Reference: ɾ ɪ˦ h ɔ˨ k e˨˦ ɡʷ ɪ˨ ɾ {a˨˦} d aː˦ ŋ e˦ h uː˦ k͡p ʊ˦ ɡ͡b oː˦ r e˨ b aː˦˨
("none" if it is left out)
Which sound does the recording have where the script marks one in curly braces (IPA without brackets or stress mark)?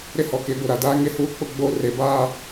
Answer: a˨